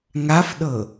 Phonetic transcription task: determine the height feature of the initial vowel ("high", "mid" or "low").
low